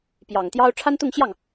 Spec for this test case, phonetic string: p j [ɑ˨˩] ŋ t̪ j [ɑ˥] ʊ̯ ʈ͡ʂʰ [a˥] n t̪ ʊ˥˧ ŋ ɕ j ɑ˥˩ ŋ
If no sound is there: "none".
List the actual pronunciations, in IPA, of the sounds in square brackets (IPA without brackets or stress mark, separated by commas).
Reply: ɑ˨˩, ɑ˥, a˥